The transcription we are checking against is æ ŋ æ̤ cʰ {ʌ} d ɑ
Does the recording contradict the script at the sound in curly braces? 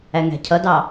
no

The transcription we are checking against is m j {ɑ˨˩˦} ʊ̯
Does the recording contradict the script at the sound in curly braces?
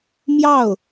yes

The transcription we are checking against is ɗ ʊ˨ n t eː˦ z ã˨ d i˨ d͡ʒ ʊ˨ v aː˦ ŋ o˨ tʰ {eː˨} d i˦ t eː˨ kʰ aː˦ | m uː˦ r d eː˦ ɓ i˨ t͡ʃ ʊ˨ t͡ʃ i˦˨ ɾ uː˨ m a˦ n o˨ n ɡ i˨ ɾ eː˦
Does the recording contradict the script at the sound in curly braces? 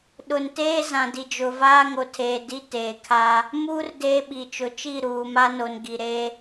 no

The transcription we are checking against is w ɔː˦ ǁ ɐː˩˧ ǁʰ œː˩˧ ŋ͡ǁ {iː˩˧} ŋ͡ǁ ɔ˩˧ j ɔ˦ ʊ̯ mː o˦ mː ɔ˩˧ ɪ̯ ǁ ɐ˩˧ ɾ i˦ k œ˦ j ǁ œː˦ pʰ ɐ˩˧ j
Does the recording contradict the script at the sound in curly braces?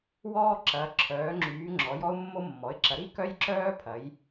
yes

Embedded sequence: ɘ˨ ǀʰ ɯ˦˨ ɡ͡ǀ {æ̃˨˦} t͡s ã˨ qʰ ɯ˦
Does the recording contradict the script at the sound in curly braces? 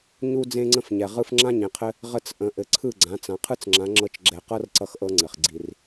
yes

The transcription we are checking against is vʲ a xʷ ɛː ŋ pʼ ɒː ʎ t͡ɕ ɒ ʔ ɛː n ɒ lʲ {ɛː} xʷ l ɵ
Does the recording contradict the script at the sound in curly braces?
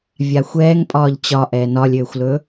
yes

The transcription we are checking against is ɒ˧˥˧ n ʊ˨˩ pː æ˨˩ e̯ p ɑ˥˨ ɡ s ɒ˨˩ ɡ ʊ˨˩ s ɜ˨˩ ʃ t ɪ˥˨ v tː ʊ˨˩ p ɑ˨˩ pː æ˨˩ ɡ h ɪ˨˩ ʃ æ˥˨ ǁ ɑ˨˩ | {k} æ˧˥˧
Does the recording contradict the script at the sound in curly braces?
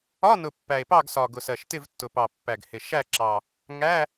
yes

